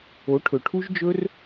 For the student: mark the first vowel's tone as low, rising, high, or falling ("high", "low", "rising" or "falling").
rising